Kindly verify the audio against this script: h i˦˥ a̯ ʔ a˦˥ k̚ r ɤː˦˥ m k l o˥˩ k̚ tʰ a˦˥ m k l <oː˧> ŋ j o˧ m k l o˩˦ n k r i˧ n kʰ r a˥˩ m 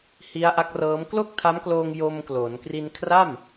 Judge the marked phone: correct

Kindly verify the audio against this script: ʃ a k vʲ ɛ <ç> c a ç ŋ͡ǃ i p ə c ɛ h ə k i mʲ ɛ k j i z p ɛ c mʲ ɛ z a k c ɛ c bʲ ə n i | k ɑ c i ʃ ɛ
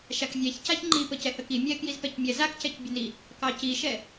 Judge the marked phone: correct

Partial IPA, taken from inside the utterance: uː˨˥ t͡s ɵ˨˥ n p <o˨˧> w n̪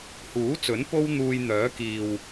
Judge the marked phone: incorrect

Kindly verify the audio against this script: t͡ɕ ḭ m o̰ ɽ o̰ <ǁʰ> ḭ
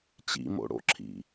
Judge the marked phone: correct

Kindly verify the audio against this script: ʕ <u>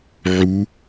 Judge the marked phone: correct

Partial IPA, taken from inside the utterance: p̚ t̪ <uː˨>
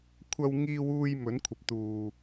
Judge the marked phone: correct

